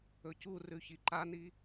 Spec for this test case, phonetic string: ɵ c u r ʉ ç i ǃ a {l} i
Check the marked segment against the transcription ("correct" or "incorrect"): incorrect